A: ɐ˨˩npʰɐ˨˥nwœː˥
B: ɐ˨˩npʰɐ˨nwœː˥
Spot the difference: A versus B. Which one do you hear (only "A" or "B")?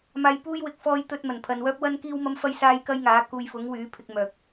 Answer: B